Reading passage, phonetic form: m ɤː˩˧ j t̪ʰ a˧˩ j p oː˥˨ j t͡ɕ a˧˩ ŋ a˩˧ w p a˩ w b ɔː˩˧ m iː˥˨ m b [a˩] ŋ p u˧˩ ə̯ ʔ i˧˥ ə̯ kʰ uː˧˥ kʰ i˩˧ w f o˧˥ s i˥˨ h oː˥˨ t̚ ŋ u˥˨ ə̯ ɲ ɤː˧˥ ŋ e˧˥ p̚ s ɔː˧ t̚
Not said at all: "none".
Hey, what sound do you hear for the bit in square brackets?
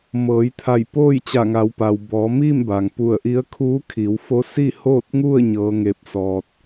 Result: a˩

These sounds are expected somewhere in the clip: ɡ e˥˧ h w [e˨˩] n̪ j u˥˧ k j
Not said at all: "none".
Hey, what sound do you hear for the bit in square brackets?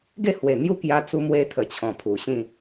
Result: e˨˩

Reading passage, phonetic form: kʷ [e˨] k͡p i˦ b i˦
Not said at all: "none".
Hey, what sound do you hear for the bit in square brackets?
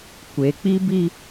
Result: e˨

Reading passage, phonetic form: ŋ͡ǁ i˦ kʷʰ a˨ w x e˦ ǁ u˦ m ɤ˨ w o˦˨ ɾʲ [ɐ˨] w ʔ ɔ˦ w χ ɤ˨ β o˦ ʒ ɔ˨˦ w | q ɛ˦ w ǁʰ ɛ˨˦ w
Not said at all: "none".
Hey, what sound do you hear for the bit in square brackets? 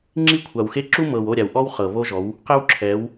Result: a˨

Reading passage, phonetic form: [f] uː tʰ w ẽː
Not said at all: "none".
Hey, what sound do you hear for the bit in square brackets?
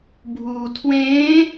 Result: bʱ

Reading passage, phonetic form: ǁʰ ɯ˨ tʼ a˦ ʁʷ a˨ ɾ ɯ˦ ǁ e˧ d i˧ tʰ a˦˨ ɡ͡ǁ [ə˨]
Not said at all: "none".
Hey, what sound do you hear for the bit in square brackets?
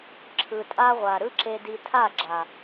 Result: a˨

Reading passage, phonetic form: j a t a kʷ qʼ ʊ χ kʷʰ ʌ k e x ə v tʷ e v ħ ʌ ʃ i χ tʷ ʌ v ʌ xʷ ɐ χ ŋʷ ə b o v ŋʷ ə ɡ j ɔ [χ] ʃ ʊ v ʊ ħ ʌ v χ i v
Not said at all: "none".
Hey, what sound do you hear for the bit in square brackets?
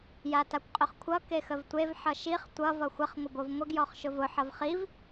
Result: χ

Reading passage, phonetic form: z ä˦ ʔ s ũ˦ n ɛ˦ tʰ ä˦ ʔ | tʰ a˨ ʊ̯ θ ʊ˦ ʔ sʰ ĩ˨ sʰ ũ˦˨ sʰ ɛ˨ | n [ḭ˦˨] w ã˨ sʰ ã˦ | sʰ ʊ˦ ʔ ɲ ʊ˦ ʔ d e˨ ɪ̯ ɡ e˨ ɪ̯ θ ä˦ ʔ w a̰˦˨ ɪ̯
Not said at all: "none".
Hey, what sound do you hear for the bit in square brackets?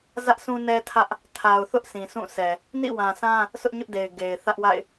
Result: ḭ˦˨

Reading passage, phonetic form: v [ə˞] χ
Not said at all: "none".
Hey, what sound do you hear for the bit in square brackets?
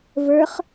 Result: ə˞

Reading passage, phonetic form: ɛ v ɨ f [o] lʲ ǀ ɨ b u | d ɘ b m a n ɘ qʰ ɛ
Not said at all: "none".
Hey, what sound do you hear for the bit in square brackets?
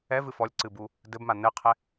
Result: ɔ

